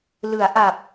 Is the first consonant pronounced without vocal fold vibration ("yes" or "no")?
no